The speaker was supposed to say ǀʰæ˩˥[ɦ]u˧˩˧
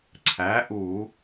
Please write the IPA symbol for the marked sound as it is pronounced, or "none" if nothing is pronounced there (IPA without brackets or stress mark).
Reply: ʔ